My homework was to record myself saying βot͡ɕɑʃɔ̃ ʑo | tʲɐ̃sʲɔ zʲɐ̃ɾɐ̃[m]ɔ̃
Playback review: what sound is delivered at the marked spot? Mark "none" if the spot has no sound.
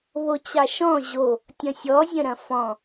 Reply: f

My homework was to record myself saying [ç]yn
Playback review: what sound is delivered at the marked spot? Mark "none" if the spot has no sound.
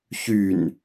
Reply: ç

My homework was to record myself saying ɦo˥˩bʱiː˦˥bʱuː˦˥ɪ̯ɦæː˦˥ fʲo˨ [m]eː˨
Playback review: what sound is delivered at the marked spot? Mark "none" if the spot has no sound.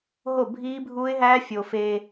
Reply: f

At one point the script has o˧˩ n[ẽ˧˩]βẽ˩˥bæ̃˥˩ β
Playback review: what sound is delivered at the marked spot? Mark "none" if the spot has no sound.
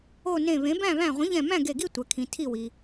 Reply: ẽ˧˩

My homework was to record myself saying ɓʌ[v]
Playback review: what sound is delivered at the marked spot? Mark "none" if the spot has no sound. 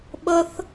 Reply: θ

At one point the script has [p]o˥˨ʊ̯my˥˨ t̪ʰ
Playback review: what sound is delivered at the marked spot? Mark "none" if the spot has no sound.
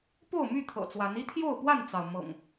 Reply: p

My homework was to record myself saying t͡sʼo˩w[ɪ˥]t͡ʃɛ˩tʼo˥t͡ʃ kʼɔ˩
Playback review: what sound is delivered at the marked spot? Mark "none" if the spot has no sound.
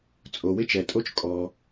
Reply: ɪ˥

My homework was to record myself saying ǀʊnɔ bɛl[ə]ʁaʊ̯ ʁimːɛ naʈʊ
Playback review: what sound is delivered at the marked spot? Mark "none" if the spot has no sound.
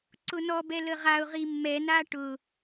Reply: ə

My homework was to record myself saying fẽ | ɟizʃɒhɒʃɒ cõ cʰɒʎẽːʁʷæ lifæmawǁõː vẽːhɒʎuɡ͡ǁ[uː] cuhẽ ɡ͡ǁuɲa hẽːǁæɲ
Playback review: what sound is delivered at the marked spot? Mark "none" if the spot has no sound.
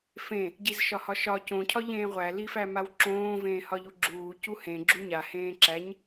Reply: uː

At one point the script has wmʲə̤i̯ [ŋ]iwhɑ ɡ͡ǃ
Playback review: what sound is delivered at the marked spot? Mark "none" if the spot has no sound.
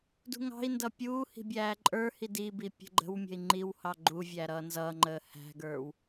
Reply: ŋ͡ǃ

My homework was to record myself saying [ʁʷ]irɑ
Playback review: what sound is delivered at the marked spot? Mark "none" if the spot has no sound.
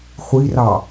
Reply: χʷ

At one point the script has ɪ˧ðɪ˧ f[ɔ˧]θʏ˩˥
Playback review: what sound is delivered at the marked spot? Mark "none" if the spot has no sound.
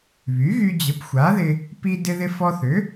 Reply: ɔ˧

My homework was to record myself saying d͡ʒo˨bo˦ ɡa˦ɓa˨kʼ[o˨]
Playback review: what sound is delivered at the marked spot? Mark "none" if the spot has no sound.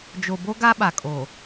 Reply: oː˨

